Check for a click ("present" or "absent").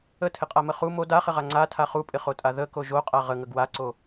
present